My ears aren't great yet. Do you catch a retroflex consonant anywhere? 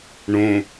yes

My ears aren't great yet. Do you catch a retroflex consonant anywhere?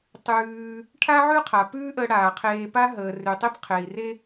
yes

